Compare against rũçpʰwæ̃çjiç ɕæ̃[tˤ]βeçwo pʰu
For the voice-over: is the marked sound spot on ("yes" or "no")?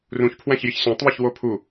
yes